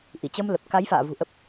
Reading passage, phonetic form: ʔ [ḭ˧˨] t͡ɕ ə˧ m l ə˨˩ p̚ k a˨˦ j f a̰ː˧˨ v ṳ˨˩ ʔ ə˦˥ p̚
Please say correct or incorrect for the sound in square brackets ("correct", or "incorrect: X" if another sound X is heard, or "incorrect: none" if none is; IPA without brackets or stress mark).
incorrect: i˧˩